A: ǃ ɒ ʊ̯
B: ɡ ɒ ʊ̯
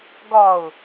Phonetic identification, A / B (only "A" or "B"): B